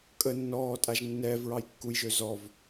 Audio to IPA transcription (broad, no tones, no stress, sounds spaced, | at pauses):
kʼ ə nː ɔː tʼ a ʒ nː ɛː v ɹ ɑ j kː u j ʒ ø z ɔ v